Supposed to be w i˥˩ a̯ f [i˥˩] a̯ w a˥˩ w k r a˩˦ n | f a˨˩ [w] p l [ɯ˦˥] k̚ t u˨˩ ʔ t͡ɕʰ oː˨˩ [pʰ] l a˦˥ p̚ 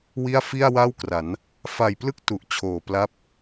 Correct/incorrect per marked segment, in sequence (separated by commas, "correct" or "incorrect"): correct, incorrect, correct, incorrect